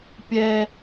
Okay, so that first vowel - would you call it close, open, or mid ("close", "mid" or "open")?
mid